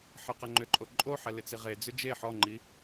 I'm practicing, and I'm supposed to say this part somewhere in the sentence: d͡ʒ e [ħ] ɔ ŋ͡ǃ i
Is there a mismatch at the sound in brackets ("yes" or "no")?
no